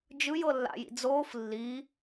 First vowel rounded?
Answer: no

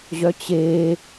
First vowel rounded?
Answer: yes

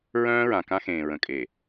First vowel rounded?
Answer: yes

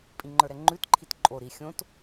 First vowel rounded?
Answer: no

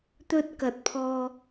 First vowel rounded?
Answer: yes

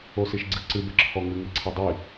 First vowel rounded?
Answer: yes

